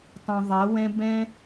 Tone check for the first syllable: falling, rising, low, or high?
low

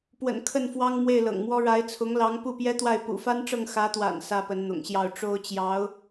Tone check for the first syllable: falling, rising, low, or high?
low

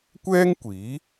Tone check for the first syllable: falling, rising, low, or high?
high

